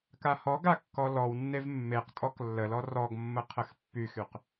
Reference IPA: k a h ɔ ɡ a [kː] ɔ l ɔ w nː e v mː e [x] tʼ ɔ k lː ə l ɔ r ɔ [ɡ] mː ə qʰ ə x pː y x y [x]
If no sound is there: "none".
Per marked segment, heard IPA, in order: kː, q, ɡ, q

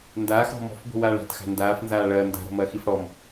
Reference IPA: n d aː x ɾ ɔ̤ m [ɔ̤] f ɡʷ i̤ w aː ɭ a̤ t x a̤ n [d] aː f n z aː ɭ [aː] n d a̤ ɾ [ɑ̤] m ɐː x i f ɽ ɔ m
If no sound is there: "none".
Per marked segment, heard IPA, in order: ɔ̤, d, ɐː, ɔ̤

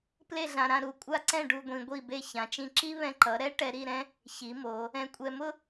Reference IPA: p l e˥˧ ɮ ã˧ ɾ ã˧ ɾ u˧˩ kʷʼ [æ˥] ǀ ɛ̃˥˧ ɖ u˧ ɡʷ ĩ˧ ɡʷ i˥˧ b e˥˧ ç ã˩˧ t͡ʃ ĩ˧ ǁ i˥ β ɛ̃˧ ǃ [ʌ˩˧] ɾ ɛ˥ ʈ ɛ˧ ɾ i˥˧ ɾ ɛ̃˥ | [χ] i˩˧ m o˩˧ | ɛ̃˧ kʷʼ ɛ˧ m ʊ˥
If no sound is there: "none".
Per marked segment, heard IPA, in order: a˥, ʌ˩˧, ç

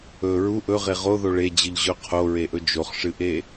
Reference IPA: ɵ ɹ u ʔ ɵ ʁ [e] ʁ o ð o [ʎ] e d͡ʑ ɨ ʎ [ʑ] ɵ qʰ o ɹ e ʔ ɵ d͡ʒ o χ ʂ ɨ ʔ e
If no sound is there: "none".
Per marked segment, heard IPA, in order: e, ɭ, ʑ

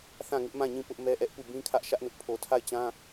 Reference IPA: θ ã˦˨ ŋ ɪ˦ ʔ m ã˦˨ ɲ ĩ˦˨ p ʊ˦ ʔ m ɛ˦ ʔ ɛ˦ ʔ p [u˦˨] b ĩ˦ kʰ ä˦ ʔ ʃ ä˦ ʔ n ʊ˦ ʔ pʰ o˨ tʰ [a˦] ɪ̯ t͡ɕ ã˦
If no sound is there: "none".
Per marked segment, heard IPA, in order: u˦˨, a˦˨

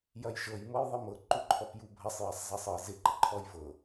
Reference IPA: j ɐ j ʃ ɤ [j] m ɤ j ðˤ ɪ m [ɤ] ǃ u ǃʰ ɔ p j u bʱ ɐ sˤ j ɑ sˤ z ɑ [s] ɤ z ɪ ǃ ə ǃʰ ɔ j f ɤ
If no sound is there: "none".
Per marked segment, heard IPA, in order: j, ɤ, sˤ

